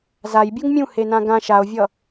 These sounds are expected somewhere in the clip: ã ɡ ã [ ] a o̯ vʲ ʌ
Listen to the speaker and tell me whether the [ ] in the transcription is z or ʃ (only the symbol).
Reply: ʃ